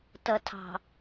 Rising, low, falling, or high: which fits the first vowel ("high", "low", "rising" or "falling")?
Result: low